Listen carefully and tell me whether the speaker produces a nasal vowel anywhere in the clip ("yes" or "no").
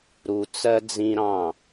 yes